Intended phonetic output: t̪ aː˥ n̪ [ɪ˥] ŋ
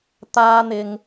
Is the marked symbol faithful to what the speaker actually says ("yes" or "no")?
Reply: no